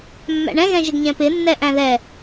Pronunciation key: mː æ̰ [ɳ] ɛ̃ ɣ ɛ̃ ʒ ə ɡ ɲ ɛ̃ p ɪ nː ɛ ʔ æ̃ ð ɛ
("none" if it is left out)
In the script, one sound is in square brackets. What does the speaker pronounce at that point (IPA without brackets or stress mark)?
ɳ